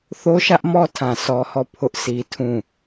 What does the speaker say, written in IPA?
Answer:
θo˦ʃä˦ʔmɔ˦tʰã˨ sɔ˦hɔ˦˨ pʰʊ˦ʔsi˦tʰũ˦˨

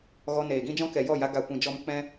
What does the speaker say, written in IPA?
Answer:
ɣɔ˧neː˨ ɡĩ˦d͡ʒɔ̃˦ kɛ˨jɔ˦˨ja˧ ɡa˨kʷĩ˨d͡ʒɔ˧m k͡pɛ̃˦

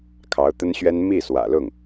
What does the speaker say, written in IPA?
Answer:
kʰɑ˧˥ʊ̯t̪ə˥nɕɥɛ˥n mi˥˩ swä̰˨˩lʊ˥˩ŋ

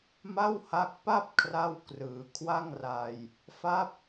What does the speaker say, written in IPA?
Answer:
ma˥˩wha˦˥k̚ pa˥˩p̚ kʰra˥˩wkrɯː˩˦ kʰwa˥˩ŋra˧j | fa˦˥p̚

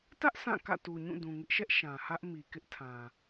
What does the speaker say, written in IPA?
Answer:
tä˦ʔ sʰã˦˨ kä̰˦˨tu˨ɲũ˦˨ dũ˨ŋɪ˦ʔʃɛ˦ʔ ʃã˨hä˦ʔ mi˨ kɪ˦ʔtʰã˨

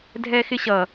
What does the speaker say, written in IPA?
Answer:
dʱɛxɪɕʌ

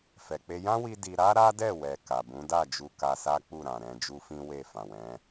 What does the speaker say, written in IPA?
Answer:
fɛ˨k͡pe˧ jã˦wi˧ di˧ ɾa˦ɾa˦dɛ˦˨wɛ˨ ka˨bũ˨˦da˦˨d͡ʒu˧ ka˧sa˦k͡pu˦˨ ɾã˨ɾɛ̃˧ d͡ʒu˦fĩ˦ we˦˨fã˨wɛ̃˨˦

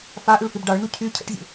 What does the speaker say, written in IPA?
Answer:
fa ʔyɭfibɖɑɭnu cʰy cʰə̰ʈzʲṵ

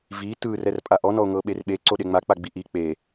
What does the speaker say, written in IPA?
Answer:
vi tɯ rɛrpʼaʔɔ nɔo̯ŋɤɓerɓe ǀoɗeŋ͡ma k͡paɡ͡biʔi k͡pe

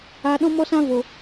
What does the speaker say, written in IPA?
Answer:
aː˨ɗɔ̃˧mɔ˧sã˧ vo˨

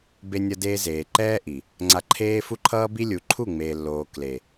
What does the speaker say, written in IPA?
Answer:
be˧nʲʌ˧deː˧ zeː˨ ǃɛː˦ʔi˨ | ŋ͡ǀa˧ ǃʰeː˦ fu˦ǃʰʌː˦bi˦lʲu˨ ǃʰu˦˨ ŋ͡meː˨lːoː˨ kle˨

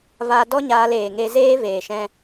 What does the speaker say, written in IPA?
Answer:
va˧ dɔ˦ɲaː˧leː˨ ŋe˧zeː˦veː˨ʃɛ̃˧

